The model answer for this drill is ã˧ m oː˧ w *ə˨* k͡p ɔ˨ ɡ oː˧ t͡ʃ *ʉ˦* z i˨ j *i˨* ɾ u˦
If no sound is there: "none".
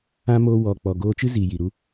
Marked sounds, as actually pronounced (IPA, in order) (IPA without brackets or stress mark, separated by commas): ɔ˨, ɨ˦, i˨